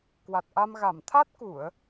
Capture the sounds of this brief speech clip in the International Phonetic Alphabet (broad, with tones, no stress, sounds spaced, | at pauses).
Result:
k w a˨˩ t̚ ʔ a˧ m ɣ a˧˩ m t̪ʰ a˦˥ t̚ k u˧˩˨ ə̯